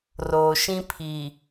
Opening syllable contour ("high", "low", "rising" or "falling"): low